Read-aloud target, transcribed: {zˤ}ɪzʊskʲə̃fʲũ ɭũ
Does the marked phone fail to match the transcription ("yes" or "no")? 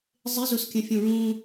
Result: no